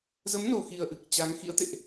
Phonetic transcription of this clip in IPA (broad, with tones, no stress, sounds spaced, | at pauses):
z ə˨˦ m n o˨˩ x i˨˩ ə̯ ʔ ɨ˨˩ k̚ t͡ɕ a˨˦ ŋ x ḭ˧˥ ə̯ t̪ ḛ˧˨ ʔ